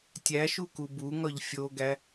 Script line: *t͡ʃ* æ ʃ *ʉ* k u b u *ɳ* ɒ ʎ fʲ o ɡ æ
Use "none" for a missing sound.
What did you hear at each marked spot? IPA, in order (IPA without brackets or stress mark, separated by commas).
tʲ, u, ŋ